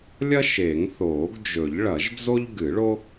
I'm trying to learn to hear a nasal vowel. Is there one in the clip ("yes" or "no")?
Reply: no